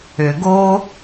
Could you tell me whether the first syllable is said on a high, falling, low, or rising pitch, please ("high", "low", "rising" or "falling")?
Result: low